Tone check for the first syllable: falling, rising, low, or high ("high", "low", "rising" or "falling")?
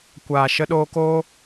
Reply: low